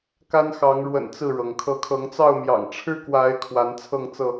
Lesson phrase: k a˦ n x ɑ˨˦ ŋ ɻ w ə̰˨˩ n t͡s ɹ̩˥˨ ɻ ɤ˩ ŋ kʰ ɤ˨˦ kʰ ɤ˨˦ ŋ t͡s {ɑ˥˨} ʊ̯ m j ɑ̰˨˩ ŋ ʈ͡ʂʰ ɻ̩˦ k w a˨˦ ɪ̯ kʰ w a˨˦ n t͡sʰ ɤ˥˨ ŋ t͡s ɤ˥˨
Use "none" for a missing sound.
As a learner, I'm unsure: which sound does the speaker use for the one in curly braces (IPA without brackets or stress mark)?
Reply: ɑ˥˨